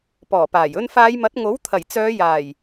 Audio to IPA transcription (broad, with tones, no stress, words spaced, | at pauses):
pɔː˨˩paː˨˩j ɵ˧nfaː˨˧jmɐ˨˥t̚ ŋo˨˥w t̪ʰɐ˨˩jt͡sœː˨˧ jaː˨˩j